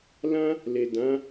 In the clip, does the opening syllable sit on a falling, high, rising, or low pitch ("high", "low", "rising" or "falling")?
high